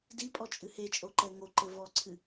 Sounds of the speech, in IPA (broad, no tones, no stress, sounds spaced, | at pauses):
d i pʼ ɔ t͡ʃʼ ɨ h e t͡ʃʼ o ǃ ɛ ŋ o ǃ ɘ v ɔ ǀʰ ɨ